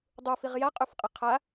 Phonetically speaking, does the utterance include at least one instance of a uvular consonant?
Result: yes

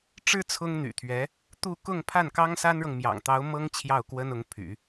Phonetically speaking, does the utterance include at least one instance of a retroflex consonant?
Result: yes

